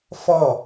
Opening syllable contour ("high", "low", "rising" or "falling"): falling